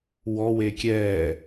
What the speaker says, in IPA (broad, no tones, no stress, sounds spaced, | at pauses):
w ɔ w e kʲ ɛ